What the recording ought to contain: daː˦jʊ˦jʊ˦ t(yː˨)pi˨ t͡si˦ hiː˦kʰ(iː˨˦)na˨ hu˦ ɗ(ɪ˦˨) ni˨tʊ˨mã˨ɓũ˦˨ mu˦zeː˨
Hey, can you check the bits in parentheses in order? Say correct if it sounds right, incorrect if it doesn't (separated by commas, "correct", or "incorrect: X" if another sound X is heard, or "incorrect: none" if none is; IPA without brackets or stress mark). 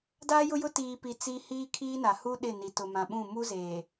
incorrect: iː˨, incorrect: iː˦, correct